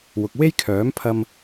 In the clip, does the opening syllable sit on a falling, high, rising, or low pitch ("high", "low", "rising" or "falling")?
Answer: low